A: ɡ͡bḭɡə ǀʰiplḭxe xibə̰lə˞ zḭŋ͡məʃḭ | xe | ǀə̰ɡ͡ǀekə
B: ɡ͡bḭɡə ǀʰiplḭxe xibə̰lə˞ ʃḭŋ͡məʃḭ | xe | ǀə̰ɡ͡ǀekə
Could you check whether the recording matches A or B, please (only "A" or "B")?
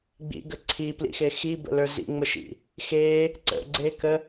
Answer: A